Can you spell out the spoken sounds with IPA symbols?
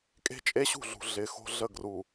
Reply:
kʼe̤˦t͡ʃʼe˦ɕṳ˦˨ɮṳ˨ ɮɪ˨˦xo̤˦ ɮə˦˨ɡru˨

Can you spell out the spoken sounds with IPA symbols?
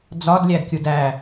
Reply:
d͡zɒdlʲædkʲud æ

